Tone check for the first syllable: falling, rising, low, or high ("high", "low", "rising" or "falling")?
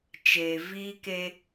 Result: low